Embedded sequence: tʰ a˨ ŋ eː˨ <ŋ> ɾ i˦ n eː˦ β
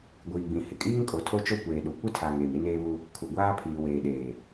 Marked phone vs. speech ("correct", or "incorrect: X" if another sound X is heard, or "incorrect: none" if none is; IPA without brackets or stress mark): incorrect: m